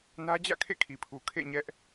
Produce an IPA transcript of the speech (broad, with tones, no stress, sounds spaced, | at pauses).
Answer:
n ä˦ d͡ʑ ä̰˦˨ kʰ ḛ˦˨ kʰ i˨ pʰ u˨ kʰ ḛ˦˨ ɲ ɛ˦ ʔ